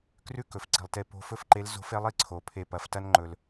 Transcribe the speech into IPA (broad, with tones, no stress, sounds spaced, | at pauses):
k r ʉ˥ k ɵ˩˧ f ǀ i̤˩ lˠ t e˧ p o̤˧˥ f ɵ˥ f ǃ e˧˥ l z o̤˧˥ f e˧˥ lˠ i˧ ǀʰ o˩ pʰ e˧ p ɐ˩˧ f t ɐ˥ n ŋ͡ǃ ɵ˩ l